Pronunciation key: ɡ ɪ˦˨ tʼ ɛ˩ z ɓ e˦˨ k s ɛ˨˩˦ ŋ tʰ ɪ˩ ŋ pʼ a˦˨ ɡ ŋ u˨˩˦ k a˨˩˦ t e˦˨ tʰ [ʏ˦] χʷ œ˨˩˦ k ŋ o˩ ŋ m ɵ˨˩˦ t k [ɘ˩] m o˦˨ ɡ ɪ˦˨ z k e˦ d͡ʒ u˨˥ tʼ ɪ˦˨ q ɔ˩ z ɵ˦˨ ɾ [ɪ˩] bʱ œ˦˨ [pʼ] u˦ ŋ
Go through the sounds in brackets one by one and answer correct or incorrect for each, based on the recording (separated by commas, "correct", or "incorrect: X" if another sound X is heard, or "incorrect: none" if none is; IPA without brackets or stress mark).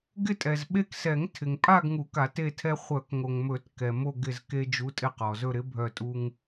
incorrect: ɛ˦, incorrect: ɛ˩, incorrect: ɪ˨˥, incorrect: tʼ